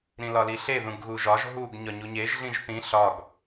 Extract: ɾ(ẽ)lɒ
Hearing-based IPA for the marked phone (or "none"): ĩ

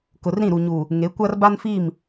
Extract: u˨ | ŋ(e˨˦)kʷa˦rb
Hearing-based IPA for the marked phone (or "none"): e˨˦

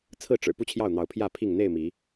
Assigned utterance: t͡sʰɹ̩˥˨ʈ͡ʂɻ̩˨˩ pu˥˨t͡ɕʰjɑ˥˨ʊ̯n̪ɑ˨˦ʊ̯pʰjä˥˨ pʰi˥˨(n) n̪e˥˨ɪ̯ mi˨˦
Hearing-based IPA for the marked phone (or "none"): ŋ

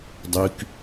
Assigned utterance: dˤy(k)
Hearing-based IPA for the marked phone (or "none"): k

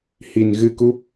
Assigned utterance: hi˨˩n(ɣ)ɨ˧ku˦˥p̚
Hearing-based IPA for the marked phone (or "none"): ɣ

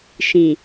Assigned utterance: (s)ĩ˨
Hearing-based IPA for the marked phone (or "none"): ʃ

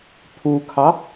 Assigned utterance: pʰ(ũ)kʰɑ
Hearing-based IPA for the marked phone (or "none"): u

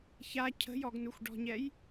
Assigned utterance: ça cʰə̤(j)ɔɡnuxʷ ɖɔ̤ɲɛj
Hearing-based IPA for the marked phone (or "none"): j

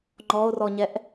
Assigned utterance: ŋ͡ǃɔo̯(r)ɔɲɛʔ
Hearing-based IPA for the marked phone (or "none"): r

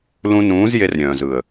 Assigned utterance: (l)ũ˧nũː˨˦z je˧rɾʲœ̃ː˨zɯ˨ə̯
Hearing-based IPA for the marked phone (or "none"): l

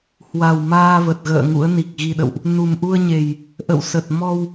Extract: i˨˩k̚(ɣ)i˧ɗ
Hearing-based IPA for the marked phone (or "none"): ɣ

